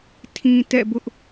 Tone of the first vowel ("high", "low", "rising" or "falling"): low